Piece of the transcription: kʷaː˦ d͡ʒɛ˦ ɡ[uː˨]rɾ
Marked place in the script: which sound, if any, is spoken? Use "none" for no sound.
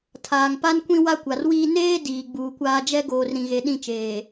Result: oː˨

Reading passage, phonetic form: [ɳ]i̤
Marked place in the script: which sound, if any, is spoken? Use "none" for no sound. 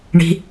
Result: ɳ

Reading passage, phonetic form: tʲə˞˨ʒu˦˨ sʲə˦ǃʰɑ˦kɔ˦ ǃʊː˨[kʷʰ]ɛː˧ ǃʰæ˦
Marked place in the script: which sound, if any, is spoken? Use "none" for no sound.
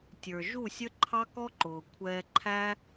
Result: kʷʰ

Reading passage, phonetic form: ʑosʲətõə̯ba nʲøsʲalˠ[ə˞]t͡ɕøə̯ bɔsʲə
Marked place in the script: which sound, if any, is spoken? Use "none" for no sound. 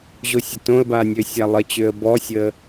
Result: ə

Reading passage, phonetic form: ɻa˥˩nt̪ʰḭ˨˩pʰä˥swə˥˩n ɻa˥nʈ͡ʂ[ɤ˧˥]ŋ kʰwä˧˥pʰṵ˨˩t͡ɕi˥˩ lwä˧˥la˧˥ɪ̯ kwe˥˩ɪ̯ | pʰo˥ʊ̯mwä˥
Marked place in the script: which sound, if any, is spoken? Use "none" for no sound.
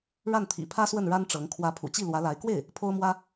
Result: ɤ˧˥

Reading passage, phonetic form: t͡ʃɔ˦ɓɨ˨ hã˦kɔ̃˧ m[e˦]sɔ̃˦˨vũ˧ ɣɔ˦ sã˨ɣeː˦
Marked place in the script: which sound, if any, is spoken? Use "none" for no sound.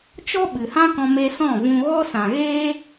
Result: e˧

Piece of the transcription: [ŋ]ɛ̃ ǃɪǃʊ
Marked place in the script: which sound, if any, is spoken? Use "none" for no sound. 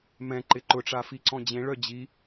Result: m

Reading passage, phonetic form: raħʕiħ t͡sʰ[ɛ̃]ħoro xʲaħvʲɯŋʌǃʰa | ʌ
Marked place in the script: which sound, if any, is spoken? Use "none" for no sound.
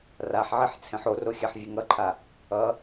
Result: ɛ̃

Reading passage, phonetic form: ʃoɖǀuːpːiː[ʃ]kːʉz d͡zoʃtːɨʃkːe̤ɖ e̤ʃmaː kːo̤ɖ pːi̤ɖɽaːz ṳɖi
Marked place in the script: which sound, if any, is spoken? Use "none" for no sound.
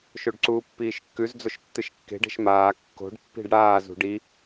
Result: ʃ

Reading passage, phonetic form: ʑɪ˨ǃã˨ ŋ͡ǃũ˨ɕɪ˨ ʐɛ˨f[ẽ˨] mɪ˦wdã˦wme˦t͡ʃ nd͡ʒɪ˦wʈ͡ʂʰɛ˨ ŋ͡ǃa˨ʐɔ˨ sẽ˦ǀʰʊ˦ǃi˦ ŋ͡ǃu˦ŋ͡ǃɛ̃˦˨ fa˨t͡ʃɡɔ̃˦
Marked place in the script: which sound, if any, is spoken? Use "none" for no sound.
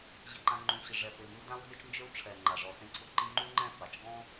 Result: e˨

